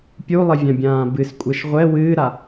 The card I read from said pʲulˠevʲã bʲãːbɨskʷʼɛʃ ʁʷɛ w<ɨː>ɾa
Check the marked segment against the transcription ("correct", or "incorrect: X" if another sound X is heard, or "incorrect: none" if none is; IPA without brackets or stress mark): correct